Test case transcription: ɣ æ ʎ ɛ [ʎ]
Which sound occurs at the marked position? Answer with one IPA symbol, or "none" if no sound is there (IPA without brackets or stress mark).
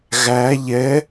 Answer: none